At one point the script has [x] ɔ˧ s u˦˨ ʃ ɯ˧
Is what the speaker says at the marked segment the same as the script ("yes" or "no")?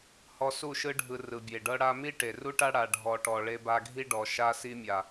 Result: no